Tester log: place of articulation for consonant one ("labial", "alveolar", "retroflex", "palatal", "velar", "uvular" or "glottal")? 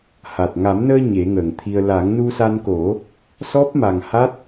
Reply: glottal